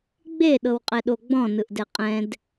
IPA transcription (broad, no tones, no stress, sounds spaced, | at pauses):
ɡ͡b e ɗ ɤ w qʼ ɛ ɗ o ɡ͡b ɔ̃ n ɯ ʔ d ɛ qʼ ɛ̃ d